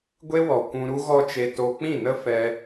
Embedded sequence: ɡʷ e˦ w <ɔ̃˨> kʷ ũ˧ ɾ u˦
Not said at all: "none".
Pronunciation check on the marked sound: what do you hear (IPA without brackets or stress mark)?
ɔ˨